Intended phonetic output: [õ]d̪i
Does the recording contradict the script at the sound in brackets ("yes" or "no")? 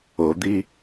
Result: yes